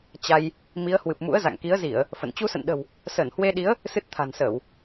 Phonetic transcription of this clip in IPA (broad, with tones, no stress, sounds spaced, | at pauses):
t͡ɕ a˧ j | m i˨˦ ə̯ h w ɨ˨˩ p̚ m ṵ˧˥ ə̯ z a̰˧˨ ŋ k i˨˦ ə̯ z i˧˩˨ ə̯ | f ə̰˧˨ n t͡ɕ u˧ s ə̰˧˨ n ɗ ə̤˨˩ w | s əː˧˩ n h w e˧ ɗ i˨˦ ə̯ | s ɨ˦˥ t̚ t̪ʰ a̤˨˩ n s əː˧˩˨ w